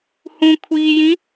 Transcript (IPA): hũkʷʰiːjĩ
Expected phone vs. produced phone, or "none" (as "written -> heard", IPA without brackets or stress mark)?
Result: none